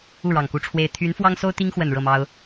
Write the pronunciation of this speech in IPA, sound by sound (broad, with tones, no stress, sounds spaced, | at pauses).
u˥˩ ɻ ɑ˨˩ ŋ k u˧˥ ʈ͡ʂʰ w e˥ ɪ̯ t̪ʰ y˧˥ n f w ɑ˥ ŋ s o˥ ʊ̯ t̪ i˥ ŋ x w ə˨˩ n ɻ ɤ˥˩ m ɑ˥ ʊ̯